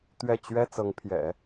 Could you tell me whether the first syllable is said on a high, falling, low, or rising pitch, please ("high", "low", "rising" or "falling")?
falling